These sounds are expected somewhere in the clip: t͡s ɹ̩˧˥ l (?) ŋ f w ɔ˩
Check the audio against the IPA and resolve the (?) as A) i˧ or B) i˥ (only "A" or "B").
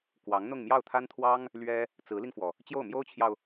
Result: A